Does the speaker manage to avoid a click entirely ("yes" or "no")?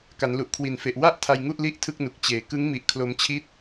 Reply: yes